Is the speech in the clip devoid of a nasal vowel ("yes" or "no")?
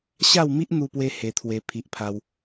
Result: yes